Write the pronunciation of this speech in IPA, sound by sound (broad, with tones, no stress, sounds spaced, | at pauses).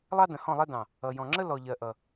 lˠ ɑ˦ d ə̃˨ h ɔ̃˦˨ lˠ ɛ˦ d ɑ̃˨ | ʌ˨ j ɔ̃˨ ŋ͡ǁ ə˦ l ɔ˨ ʎ ɜ˨ ʔ ʌ˨